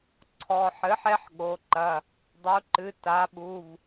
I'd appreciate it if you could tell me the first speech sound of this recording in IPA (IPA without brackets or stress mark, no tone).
ǀʰ